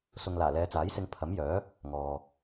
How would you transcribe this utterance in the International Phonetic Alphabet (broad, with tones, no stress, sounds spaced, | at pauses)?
s ʊ˨ ŋ l aː˨˩ l ɛː˨˧ t͡s aː˨˥ j s ɪ˧ ŋ pʰ ɐ˨˥ m j œː˨˥ | ŋ ɔː˨